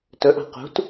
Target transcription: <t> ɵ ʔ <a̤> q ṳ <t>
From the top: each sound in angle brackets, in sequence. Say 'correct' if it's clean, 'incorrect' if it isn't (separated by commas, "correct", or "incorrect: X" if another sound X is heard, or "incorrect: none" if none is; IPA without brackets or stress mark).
correct, correct, correct